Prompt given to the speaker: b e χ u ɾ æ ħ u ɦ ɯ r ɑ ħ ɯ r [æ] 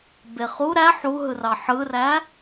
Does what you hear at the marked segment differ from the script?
no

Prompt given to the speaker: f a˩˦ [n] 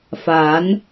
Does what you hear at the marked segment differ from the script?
no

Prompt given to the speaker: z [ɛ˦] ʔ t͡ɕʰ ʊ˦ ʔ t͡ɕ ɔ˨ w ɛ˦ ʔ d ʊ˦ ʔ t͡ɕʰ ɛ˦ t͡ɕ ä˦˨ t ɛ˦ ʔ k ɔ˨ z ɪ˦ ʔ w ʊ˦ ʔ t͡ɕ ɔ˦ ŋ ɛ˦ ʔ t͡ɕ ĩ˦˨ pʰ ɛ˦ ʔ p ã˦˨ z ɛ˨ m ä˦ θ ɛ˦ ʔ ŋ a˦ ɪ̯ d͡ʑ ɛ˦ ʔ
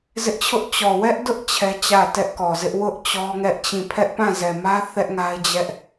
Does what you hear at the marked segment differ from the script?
yes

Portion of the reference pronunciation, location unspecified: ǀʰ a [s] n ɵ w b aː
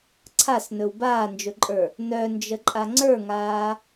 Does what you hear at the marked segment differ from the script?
no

